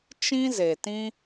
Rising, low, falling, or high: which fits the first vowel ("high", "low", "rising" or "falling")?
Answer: high